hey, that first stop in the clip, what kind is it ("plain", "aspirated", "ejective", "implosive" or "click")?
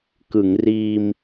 plain